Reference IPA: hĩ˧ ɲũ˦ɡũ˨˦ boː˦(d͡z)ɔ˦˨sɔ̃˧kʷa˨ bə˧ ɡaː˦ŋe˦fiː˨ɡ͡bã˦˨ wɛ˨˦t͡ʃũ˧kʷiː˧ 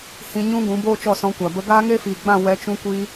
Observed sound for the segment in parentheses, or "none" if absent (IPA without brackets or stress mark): t͡ʃ